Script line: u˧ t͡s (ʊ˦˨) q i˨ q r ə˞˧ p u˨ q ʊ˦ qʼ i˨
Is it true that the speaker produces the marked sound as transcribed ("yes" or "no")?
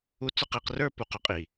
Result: yes